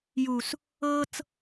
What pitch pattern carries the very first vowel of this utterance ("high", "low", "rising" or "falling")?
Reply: low